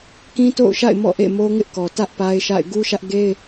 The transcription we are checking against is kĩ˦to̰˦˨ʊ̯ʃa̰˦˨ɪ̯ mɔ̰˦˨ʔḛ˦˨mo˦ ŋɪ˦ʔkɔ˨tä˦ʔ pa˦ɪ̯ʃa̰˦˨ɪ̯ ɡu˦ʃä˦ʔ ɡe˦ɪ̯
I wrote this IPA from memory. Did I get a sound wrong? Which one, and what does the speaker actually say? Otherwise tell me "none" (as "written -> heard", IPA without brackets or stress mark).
none